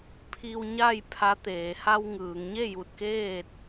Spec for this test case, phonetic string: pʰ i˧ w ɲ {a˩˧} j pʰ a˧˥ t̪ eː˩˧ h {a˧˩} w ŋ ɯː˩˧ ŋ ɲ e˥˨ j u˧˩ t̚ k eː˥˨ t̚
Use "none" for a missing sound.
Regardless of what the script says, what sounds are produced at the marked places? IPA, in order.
a˥˨, a˧

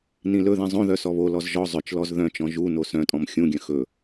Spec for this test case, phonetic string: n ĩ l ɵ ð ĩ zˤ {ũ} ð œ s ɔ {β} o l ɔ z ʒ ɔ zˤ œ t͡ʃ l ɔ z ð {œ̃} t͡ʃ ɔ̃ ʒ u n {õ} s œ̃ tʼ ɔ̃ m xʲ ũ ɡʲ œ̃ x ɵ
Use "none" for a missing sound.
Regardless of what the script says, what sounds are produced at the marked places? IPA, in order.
õ, β, œ̃, o

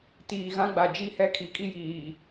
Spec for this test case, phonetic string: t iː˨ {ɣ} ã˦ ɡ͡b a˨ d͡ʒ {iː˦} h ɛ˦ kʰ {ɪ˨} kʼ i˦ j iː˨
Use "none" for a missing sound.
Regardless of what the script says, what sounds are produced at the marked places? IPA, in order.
ɣ, i˦, i˨

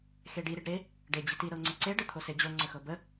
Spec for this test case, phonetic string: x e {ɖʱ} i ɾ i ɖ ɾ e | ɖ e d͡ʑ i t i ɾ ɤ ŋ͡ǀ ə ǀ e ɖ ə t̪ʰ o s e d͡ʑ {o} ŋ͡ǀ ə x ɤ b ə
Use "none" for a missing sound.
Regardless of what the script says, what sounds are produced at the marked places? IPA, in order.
ɖ, o

